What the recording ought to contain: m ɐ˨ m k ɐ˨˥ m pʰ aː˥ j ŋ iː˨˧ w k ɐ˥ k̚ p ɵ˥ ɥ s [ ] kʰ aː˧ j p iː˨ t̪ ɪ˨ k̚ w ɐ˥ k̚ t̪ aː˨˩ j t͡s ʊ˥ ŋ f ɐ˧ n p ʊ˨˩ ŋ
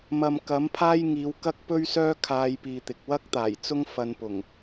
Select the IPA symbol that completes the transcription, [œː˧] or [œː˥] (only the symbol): œː˥